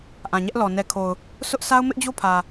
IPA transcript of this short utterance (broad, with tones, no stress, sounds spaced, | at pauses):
ʔ ã˨ ɲ ɛ˦ ʔ l ɔ˨ n ɛ˨ kʰ o˨ ʊ̯ | s ʊ˦ ʔ sʰ a˦ ʊ̯ m ɪ˦ ʔ d͡ʑ o˦ pʰ ä˨